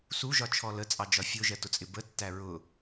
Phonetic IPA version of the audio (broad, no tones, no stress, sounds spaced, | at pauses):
s u ʒ ɒ t͡ʃʰ ɔ l ə t͡sʼ ɑ d͡ʒ ɒ fʲ ʊ ʒ ɜ t ʊ t͡sʼ ɪ b ə tː æ ɹ ʊ